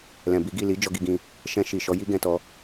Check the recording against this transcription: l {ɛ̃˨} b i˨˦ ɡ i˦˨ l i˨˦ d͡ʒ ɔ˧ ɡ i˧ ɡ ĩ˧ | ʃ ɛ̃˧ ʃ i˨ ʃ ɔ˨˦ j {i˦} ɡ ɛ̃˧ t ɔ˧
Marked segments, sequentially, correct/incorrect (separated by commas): correct, correct